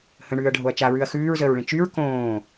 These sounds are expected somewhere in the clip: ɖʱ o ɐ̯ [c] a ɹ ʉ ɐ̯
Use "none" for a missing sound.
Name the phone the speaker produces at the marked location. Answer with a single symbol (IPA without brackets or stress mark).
t͡ʃ